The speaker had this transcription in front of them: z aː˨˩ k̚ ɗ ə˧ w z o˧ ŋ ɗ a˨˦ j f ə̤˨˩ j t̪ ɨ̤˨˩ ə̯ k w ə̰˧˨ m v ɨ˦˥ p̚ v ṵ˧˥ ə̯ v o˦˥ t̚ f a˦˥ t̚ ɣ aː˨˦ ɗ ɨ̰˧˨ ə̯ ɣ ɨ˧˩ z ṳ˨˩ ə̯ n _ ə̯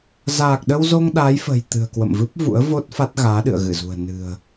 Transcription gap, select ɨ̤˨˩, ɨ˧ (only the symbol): ɨ̤˨˩